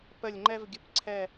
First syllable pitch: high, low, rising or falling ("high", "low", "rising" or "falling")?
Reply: falling